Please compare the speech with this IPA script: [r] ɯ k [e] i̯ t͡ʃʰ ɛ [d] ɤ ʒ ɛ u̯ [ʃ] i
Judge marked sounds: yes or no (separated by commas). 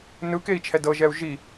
no, yes, yes, no